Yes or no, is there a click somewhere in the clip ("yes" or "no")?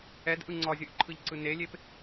yes